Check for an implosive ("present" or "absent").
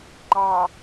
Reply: absent